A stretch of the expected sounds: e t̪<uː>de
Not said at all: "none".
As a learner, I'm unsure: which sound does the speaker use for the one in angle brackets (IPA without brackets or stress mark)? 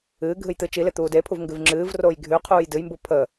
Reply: uː